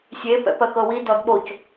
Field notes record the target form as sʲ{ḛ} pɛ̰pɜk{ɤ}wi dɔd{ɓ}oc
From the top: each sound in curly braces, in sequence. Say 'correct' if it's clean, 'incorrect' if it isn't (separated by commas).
incorrect, correct, correct